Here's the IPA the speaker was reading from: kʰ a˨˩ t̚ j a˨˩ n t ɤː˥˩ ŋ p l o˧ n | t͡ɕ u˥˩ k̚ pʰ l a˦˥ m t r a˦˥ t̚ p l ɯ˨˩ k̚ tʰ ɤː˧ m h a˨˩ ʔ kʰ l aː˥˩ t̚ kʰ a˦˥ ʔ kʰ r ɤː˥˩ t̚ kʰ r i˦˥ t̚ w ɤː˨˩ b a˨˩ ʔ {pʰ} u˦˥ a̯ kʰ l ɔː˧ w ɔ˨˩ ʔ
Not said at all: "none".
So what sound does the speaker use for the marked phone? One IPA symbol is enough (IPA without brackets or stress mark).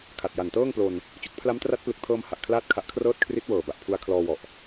pʰ